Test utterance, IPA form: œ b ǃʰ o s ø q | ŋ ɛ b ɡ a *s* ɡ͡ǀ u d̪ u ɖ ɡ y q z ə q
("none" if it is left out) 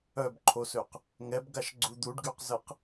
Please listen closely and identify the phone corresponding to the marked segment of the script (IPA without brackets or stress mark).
ʃ